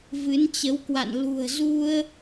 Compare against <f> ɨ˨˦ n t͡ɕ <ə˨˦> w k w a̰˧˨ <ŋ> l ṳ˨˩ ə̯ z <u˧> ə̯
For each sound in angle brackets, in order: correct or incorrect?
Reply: incorrect, correct, incorrect, correct

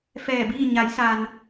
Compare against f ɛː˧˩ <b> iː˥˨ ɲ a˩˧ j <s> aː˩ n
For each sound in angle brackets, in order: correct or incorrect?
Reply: correct, correct

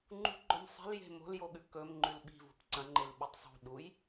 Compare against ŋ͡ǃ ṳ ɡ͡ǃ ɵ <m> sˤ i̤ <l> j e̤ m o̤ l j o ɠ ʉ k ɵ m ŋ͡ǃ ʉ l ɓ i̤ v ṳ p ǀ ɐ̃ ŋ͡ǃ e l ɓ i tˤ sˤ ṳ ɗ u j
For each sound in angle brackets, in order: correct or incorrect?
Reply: correct, correct

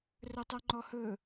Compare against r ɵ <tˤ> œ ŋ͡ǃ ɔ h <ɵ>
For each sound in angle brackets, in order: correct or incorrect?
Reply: correct, correct

